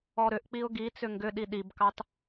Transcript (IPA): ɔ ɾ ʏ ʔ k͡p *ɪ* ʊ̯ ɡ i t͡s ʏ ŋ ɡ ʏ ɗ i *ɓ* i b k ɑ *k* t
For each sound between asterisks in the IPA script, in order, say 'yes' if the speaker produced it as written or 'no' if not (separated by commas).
no, no, no